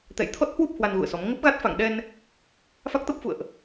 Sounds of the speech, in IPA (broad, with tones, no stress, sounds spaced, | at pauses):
t̪ ɛ̰˧˨ j t̪ʰ ɔ˦˥ t̚ h w u˦˥ p̚ h w a˧ n ɣ ṵ˧˨ ə̯ s ɔ˨˦ m ŋ ə˦˥ p̚ ɣ a˦˥ t̚ f a̰˧˨ ŋ ɗ ɛ˧ n | f a˦˥ k̚ t̪ ə˦˥ p̚ f ṵ˧˨ ə̯ ʔ